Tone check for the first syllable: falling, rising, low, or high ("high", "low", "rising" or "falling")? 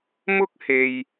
high